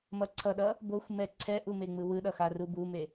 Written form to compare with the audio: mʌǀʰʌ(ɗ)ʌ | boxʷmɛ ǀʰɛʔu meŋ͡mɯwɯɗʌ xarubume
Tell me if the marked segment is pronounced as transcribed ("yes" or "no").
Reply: yes